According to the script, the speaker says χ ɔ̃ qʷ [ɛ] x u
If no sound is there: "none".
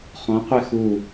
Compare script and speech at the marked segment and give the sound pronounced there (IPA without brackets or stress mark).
e